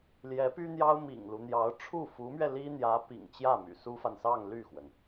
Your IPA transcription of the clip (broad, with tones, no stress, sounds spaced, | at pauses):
l j ɛ˧˥ p y˥ n̪ j ɑ˥ ʊ̯ m ḭ˨˩ ŋ l u˦ n̪ j ɑ˧˥ ʊ̯ ʈ͡ʂʰ u˥˩ f u˧˥ m ɥ ɛ˧ l i˥ n̪ j ä˧˥ p ḭ˨˩ ŋ t͡ɕ j ä˥˩ m y̰˨˩ s u˥ f a˨ n s ɑ˥˧ ŋ l y˥˩ x w ə˩ n